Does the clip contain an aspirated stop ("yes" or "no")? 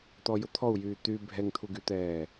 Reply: yes